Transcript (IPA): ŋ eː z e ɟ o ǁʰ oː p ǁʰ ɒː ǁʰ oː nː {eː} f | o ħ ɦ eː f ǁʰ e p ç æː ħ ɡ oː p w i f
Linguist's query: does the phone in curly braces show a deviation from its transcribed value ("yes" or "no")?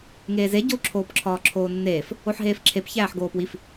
no